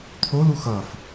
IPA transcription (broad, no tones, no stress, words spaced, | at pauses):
t̪ʰolu xʌf